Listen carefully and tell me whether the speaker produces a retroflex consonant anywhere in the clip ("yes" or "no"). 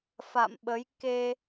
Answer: no